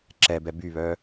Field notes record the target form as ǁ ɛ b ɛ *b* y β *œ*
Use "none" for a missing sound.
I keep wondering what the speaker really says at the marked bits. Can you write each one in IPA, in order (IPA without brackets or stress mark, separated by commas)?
b, œ